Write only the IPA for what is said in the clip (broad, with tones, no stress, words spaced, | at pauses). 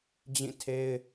d͡ʑĩ˦˨ tʰe˦ɪ̯